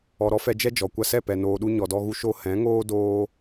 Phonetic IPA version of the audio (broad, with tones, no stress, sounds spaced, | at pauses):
ɔ˨ ɾ ɔ˦ f ɛ˧ d͡ʒ ɛ˦ d͡ʒ ɔ˨ kʷ a˧ s ɛ˦˨ p ɛ˧ n oː˧ ɗ u˦ ɲ ɔ˧ d ɔ˦ ɣ u˦ ʃ o˦ h ɛ̃˨˦ ŋ oː˦ d oː˦